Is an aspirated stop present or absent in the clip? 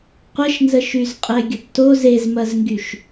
absent